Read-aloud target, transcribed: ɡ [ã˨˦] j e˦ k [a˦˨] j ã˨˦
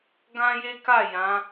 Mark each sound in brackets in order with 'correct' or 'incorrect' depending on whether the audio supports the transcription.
incorrect, correct

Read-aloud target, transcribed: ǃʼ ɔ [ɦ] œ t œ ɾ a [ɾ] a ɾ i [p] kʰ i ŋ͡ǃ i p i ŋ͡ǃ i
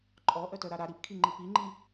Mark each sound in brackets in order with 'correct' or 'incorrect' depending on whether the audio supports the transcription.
incorrect, correct, correct

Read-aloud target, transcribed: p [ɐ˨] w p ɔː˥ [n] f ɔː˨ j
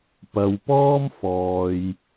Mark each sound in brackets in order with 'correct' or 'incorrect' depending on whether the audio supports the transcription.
correct, incorrect

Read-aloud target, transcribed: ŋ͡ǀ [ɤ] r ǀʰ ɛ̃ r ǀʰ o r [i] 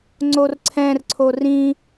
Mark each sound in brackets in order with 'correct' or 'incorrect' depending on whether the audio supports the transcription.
incorrect, incorrect

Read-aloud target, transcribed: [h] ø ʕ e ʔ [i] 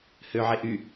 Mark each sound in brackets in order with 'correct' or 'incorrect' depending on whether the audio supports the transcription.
correct, incorrect

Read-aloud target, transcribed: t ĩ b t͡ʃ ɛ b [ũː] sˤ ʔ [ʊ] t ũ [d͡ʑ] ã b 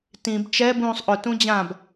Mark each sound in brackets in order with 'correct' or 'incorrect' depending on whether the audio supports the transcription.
correct, correct, correct

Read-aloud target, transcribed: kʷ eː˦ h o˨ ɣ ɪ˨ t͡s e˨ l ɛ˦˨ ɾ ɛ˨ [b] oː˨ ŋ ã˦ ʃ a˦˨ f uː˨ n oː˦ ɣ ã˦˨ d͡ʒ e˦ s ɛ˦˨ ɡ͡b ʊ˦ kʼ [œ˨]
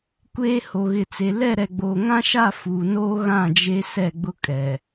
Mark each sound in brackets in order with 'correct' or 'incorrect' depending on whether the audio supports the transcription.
incorrect, incorrect

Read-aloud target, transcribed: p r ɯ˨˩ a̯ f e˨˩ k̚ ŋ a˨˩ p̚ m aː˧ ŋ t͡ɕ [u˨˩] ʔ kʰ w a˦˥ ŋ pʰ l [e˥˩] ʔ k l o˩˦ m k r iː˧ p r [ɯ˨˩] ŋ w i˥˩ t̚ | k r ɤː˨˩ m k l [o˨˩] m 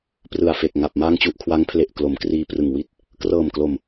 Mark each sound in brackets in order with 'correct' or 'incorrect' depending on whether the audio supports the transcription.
correct, incorrect, correct, correct

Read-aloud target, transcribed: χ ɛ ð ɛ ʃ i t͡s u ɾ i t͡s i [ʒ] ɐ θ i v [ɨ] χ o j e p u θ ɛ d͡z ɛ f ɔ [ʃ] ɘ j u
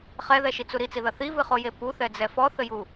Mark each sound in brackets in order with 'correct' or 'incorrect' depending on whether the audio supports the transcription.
incorrect, correct, incorrect

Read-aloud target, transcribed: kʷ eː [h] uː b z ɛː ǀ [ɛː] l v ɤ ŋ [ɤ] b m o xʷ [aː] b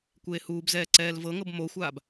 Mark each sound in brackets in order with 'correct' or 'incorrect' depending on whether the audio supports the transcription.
correct, correct, correct, correct

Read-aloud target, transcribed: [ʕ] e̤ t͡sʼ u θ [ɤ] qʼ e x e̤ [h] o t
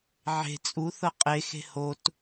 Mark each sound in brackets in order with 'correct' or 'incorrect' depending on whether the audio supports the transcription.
correct, correct, correct

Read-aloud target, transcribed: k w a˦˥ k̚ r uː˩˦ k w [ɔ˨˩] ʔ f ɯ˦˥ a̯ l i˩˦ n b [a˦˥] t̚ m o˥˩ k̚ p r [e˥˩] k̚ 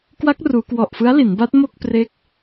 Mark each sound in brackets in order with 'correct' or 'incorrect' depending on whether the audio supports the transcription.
correct, correct, correct

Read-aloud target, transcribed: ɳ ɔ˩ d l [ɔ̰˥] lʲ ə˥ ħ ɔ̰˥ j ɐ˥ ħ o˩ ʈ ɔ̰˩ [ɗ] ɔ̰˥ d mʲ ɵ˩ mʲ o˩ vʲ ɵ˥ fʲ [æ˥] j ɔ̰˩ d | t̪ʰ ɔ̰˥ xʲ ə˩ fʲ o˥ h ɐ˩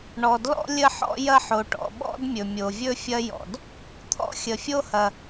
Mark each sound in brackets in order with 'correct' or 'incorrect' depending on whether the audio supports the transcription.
correct, incorrect, incorrect

